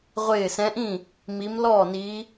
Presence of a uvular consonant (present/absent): present